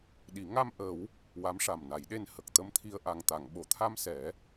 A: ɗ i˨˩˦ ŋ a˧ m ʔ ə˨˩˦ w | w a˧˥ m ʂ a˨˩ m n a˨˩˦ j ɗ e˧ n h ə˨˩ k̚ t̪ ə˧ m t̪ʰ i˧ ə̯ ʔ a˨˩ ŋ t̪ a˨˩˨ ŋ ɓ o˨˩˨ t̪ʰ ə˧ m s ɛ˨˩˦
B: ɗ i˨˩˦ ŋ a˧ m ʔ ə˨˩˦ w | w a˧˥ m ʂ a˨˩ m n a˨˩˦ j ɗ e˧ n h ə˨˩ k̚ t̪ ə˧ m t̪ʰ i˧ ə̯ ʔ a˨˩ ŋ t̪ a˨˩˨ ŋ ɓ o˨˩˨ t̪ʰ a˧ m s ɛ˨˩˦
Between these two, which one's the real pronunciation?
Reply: B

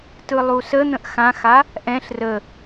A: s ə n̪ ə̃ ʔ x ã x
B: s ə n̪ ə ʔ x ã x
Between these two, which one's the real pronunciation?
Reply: A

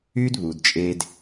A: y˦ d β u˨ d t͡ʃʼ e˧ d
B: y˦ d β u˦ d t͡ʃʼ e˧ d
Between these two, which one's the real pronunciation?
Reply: A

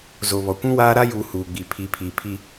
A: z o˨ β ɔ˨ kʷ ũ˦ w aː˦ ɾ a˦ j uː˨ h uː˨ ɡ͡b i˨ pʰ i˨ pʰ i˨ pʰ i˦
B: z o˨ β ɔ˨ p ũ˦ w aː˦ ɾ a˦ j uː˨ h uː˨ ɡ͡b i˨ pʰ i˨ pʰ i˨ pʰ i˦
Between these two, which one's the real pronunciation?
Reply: A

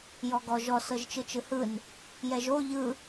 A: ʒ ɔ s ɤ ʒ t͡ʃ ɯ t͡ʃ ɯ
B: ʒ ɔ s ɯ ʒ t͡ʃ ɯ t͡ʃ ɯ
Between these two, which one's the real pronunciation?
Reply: A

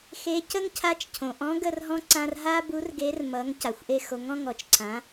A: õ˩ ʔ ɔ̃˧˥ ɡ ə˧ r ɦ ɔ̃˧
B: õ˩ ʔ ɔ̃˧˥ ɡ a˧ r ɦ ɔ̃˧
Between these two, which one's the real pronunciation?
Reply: A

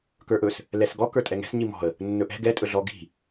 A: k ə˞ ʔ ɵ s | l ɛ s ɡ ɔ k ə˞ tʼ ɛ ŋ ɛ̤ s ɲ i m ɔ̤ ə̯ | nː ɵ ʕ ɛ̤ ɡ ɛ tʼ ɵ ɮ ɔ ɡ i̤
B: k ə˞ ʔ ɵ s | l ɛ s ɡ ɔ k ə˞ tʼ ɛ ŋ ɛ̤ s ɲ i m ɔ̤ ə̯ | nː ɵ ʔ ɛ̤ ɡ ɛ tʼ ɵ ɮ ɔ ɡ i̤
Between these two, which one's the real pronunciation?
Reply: B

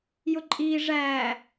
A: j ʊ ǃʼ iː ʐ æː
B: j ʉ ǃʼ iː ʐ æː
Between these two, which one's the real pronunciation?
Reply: A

